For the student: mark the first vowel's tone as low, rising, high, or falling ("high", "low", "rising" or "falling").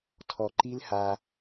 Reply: low